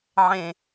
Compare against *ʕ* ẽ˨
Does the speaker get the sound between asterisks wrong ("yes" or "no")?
no